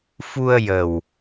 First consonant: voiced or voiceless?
voiceless